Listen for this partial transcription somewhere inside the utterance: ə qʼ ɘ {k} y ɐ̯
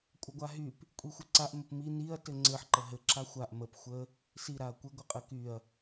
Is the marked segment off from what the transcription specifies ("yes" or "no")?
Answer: no